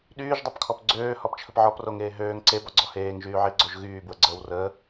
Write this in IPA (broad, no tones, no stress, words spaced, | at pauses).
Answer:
ɗyːʒdˤepkʰɔp ɡ͡ǀøːhɔbt͡ʃʰəp ʕɔproŋeː ɦøːŋ ǀebɔɡ͡ǀɔ heːŋʒyːʕiɡ͡ǀoʒ ɣyːbwəɡ͡ǀəːw rəː